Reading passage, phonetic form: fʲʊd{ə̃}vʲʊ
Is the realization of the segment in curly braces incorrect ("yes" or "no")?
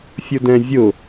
yes